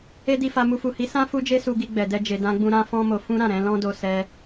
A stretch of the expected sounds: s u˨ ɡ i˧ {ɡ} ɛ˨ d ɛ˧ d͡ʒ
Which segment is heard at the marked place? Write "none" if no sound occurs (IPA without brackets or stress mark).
ɡ͡b